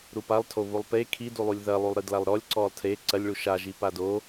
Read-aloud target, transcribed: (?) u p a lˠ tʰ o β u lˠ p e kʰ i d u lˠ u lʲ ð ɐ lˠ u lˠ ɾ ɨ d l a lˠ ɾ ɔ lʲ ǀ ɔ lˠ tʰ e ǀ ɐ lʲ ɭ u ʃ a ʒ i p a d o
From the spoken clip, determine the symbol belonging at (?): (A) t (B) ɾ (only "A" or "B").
B